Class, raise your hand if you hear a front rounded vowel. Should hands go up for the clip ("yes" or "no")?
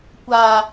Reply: no